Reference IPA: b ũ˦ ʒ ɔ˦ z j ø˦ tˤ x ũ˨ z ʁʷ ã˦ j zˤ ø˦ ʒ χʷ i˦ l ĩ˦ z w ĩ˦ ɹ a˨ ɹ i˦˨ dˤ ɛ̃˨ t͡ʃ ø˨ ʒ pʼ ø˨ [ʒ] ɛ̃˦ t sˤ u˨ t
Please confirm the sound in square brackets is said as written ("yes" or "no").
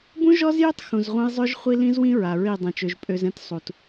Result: no